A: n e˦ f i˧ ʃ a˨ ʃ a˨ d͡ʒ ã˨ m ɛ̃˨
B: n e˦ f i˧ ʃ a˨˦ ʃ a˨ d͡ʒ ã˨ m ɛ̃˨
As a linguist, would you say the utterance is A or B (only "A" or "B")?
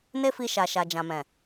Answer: A